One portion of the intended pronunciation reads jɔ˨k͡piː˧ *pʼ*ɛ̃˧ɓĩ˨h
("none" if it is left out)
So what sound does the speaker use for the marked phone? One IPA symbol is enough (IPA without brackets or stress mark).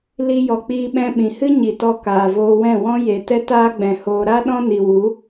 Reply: ɓ